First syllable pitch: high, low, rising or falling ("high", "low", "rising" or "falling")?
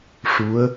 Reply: rising